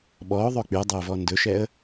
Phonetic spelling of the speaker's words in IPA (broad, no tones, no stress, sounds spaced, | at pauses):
ɓ ɔ ʊ̯ ðˤ ɵ k͡p y dˤ ø ʊ̯ v ɔ n d ɵ ʃ ɛ ə̯